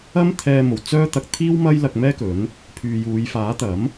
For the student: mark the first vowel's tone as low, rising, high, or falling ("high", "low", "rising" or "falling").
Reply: high